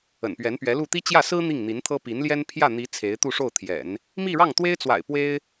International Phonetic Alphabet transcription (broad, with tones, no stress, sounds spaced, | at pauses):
ə̰˨˩ n p ɥ ɛ˧˥ n p ɥ ɛ˧˥ l u˥˩ t̪ i˥ t͡ɕ j ä˥˩ s ɹ̩˥ n̪ i˥˩ ŋ n̪ i˧˥ n t̪ʰ ɤ˥ p i˧˥ n l j ɛ˥ n pʰ j ä˥˩ n̪ i˧˥ t͡sʰ e˧˥ ɪ̯ t̪ u˥˧ ʂ o˥˩ ʊ̯ t̪ʰ j ɛ̰˨˩˦ n | m i˥˧ ɻ ɑ˥˩ ŋ t̪ w e˥ ɪ̯ t͡s w a̰˨˩ ɪ̯ p w e˥ ɪ̯